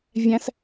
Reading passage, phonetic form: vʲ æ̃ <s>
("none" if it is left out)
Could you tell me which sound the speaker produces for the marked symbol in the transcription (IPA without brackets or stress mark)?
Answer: s